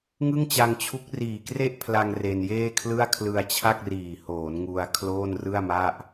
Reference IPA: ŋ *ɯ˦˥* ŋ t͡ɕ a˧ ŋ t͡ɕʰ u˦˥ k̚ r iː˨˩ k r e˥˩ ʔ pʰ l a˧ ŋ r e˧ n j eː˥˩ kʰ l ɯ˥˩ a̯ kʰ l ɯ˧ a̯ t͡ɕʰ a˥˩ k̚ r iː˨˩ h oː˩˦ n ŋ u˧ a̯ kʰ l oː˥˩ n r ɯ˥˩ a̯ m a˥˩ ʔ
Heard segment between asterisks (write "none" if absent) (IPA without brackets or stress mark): ɯ˥˩